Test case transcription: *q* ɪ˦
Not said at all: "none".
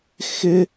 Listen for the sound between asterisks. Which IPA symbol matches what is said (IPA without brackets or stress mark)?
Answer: x